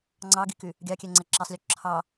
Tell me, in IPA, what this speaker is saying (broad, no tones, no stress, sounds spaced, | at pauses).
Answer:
ŋ͡ǀ ɑ ɡ i k y | ɡʲ ɑ kʲ ɛ ŋ͡ǀ ɛ ǁ ɛ sˤ lʲ o ǁʰ ɑ